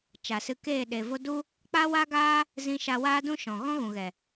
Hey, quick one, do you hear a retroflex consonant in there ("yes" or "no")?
no